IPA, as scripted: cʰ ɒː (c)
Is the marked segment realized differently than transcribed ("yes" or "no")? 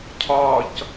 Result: no